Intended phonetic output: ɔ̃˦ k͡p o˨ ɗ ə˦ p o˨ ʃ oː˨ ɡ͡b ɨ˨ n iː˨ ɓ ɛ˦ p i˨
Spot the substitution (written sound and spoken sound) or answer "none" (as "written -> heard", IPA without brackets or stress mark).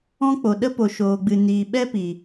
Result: none